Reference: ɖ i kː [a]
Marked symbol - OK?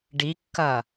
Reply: no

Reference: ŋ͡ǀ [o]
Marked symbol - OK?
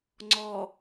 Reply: no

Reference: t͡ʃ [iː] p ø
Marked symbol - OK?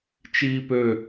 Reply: yes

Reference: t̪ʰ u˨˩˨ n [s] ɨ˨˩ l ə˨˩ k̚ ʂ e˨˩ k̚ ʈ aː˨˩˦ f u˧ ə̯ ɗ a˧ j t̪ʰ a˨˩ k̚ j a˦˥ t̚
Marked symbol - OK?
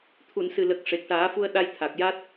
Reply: yes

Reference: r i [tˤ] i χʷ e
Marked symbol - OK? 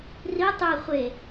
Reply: yes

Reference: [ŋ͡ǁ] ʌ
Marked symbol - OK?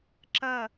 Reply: no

